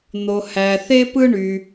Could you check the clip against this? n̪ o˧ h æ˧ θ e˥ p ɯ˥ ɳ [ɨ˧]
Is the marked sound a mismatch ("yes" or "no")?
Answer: yes